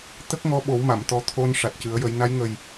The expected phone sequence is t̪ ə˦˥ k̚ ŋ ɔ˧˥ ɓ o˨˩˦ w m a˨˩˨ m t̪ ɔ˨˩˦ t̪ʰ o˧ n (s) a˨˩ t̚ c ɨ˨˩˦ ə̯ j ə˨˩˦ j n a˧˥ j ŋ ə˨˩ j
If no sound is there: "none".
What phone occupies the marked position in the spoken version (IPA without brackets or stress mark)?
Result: ʂ